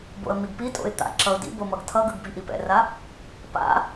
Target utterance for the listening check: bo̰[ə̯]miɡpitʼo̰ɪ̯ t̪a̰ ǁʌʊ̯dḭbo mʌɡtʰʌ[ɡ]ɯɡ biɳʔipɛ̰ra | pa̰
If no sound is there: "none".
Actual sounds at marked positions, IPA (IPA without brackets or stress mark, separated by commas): ə̯, ɡ